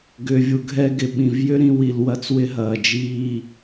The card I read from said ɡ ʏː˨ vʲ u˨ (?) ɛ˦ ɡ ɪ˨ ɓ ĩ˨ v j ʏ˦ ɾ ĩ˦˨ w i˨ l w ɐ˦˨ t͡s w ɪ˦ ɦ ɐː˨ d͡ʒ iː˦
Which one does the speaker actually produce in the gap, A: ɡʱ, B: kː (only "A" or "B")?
A